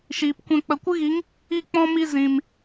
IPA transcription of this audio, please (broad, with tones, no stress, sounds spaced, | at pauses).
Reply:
ʃ iː˨ p kʷ ɛ̃˧ k͡p ə˨ kʷ ɨ˦ ɣ i˨˦ ŋ | i˦˨ k͡p ɔ̃˦ m i˧ z ĩ˨ m